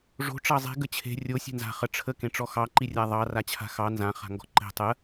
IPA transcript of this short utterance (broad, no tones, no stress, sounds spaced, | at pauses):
ʐ o̤ ʈ͡ʂ ɑ zˤ e̤ ɡ ə t͡ɕʰ e̤ rʲ o sʲ e̤ n z a̤ χ ə ʈ͡ʂʰ ə k ẽ ʈ͡ʂ ɔ x ɑ ǃ i rʲ a ðˤ ɑ r a t͡ɕʰ a̤ x ɑ n z ã χ a̤ ŋ ɡ ɔ̤ ǃ e̤ tˤ ə